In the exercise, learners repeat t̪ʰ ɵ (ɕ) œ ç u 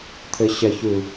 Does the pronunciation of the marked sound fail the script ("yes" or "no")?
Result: no